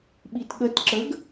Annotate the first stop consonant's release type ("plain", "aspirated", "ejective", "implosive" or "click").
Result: implosive